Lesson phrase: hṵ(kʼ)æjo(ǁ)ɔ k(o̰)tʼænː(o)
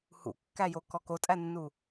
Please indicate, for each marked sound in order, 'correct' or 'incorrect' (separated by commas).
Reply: incorrect, incorrect, incorrect, incorrect